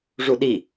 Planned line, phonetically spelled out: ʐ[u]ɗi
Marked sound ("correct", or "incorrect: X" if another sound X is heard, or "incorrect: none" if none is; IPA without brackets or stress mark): correct